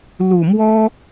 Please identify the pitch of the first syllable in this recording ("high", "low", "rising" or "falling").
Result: low